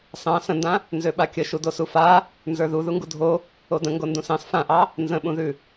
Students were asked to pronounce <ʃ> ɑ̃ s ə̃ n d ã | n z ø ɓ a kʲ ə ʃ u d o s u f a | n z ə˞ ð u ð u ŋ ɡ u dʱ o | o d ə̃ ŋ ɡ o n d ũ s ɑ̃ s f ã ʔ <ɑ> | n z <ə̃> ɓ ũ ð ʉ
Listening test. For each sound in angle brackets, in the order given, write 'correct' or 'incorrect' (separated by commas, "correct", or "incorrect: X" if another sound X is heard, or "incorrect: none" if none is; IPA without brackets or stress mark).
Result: incorrect: s, correct, correct